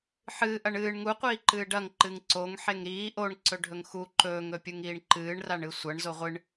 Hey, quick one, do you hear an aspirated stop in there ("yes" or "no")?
no